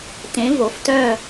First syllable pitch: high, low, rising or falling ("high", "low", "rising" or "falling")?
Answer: rising